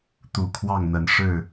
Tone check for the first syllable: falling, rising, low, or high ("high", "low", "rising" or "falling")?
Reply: low